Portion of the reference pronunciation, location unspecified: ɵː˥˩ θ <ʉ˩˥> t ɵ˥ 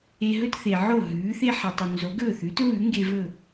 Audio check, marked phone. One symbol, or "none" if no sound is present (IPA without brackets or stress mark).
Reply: ʉ˩˥